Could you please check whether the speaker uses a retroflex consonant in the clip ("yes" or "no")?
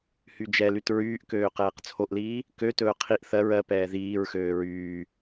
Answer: no